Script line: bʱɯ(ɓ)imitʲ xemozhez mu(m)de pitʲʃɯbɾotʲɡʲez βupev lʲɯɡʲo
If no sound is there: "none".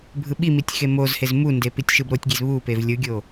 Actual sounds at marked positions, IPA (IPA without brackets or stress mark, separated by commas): ɓ, n